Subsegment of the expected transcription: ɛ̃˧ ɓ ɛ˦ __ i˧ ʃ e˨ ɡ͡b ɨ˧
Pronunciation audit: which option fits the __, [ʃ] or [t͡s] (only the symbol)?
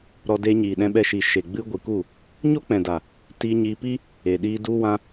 ʃ